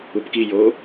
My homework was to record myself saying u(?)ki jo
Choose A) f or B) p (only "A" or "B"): B